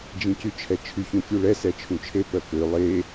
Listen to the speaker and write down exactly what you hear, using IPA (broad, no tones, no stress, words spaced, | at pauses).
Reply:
d͡ʒĩcyt͡ʃʰɛt͡ʃʰyç ũfʲuɭɛ sɛt͡ʃʰũt͡ʃʰe pœkø lˠe